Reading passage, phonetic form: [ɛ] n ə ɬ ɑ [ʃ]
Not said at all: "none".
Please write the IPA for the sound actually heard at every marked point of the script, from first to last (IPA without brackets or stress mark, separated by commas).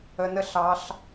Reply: ə, ɬ